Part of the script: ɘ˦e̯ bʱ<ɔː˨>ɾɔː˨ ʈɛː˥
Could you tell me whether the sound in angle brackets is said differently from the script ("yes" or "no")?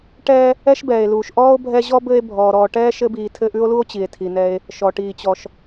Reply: no